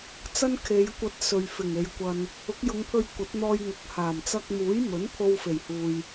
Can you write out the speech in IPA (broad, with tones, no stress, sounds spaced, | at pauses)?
t͡s ɐ˥ n kʰ e˨˧ j kʷ ɐ˧ t̚ s ɵ˨ ɥ f ɪ˨˩ ŋ e˨ j kʷ ɐ˧ n | ʊ˨˥ k̚ j ʊ˨˧ ŋ pʰ ɵ˧ ɥ kʷ ɐ˨˥ t̚ n̪ ɔː˧ j ŋ ʊ˨˥ k̚ h aː˨˩ m t͡s ɐ˧ k̚ m uː˨˥ j m ɵ˨˥ n pʰ o˧ w f e˨˩ j h uː˨ j